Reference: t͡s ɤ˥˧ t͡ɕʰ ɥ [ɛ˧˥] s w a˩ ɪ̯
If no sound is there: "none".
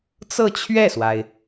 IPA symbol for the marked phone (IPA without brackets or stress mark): ɛ˥˩